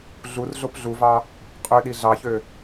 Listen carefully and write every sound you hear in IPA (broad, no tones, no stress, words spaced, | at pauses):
ɮur ɮopɮuvɑ | qʼøɗi ɮɑçø